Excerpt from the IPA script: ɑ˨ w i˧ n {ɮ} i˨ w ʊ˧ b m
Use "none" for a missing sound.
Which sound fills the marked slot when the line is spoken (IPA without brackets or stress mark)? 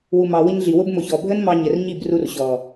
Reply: ɮ